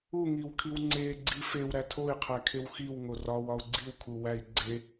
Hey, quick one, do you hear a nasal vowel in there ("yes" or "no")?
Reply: no